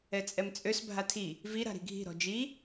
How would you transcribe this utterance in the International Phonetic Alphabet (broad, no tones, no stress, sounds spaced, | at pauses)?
ɛ t͡sʼ ɛ m t͡sʼ ø s bʱ a tʰ i | v i ɾ a̤ ɾ i̤ ɡʱ i̤ ɾ ɔ̤ d͡ʒ i